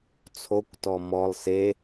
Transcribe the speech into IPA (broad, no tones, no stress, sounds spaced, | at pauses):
t͡sʰ o kʷ t ɔ m ɔ lˠ s e